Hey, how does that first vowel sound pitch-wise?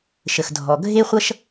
low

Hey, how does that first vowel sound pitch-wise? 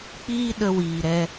high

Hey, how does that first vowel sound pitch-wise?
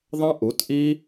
high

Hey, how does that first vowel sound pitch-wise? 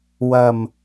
low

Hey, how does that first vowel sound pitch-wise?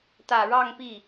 low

